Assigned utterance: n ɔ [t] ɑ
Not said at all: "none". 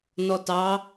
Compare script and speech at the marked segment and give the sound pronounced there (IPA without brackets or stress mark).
t